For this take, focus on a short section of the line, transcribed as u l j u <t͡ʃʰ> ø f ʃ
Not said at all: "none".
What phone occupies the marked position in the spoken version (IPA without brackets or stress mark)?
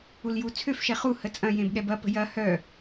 t͡sʰ